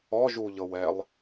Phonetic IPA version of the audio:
ɔʒuʎɤwɛlˠ

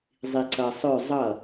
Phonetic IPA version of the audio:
zˤiǀʌ sˤœ zˤʌ

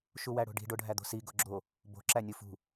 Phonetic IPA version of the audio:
ʃuwæɽo̤ɖi̤ ɖoɖʱæd̪o̤si ɡoɡ͡ǁo | bo̤ ǁænʲufṳ

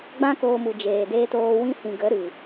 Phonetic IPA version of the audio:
ɡ͡bã˦koː˧mu˨ d͡ʒeː˨deː˧toː˧ wĩ˧hĩ˨ ɡə˨˦ ɾɨ˨

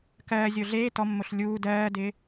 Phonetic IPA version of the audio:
kɜː zʲoɮeː tɔmːoɬ lʲuː dɜːdɪː

